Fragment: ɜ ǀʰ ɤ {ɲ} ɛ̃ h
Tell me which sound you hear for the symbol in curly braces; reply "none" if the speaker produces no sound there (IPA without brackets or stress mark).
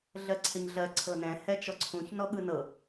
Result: n